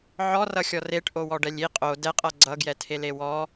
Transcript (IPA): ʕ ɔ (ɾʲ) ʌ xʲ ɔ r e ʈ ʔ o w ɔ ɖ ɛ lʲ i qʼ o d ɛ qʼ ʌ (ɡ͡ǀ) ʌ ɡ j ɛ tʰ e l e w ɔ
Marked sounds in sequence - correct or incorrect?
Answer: incorrect, correct

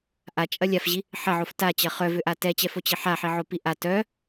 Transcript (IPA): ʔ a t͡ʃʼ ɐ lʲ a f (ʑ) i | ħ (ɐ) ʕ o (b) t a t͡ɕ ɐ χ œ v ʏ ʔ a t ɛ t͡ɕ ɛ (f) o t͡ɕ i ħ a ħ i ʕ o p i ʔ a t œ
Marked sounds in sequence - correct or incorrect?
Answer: correct, correct, incorrect, correct

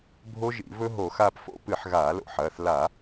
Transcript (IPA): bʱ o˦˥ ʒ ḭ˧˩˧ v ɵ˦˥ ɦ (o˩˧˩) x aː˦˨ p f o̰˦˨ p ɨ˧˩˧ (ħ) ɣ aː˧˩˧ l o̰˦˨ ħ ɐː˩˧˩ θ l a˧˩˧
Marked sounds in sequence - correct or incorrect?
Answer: incorrect, correct

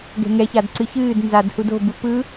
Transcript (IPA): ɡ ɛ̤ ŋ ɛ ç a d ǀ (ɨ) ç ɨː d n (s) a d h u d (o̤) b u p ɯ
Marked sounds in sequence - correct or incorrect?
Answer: correct, incorrect, correct

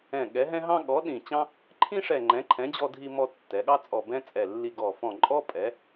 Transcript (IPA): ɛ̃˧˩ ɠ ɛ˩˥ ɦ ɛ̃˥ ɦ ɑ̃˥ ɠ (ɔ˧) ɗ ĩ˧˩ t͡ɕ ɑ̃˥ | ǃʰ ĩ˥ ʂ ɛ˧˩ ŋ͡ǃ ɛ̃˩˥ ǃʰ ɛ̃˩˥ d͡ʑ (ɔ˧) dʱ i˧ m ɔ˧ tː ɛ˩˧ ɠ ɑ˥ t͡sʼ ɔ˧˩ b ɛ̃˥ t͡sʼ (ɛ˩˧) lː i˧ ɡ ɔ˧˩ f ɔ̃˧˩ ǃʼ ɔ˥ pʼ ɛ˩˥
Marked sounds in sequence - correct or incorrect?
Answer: incorrect, correct, incorrect

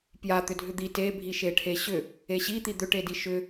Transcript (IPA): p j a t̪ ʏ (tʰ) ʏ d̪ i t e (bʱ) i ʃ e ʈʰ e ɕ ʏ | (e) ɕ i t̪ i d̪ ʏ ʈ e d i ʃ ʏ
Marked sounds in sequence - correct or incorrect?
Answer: incorrect, correct, correct

